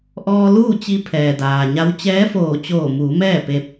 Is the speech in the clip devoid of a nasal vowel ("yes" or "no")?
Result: yes